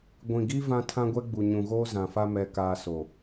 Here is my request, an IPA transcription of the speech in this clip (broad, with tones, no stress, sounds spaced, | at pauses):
ɡʷ ĩ˨ ɡ i˦ v ã˦ tʰ ã˦ ɡʷ ɛ˦ ɡ͡b u˨ ɲ ũ˨ ɣ oː˦ z ã˨ f a˦ m ɛ˨ k aː˨ s o˨